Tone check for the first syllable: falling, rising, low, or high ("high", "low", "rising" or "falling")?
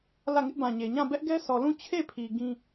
falling